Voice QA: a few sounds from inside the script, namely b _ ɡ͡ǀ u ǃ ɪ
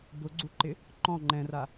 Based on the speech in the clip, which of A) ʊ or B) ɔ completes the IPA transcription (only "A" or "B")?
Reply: A